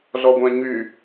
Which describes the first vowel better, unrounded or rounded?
rounded